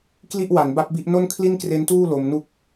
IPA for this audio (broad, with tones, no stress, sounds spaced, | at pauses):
k l i˥˩ ʔ w a˩˦ n b a˦˥ p̚ b i˦˥ ʔ n o˥˩ n kʰ l i˥˩ n k r e˦˥ n t uː˥˩ l o˧ m n u˥˩ k̚